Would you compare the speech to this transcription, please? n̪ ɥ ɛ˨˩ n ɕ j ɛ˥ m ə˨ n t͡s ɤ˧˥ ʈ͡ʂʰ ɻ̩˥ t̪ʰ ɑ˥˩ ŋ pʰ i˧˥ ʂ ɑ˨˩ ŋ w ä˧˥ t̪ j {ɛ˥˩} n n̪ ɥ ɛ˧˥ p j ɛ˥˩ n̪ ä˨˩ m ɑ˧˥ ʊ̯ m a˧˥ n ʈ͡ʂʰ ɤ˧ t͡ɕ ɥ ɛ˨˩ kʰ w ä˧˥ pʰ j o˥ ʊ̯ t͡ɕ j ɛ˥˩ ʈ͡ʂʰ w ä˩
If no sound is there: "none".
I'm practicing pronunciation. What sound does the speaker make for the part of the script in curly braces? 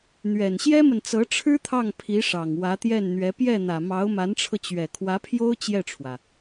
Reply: ɛ˥˩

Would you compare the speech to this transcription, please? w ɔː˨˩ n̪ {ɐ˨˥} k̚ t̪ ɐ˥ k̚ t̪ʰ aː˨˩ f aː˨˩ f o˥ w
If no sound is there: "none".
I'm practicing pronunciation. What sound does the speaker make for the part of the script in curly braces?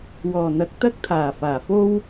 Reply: ɐ˨˥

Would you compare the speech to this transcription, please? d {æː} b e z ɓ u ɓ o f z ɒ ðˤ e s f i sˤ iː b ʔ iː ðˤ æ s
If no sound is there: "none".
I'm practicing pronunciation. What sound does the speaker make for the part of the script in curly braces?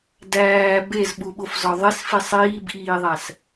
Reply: æː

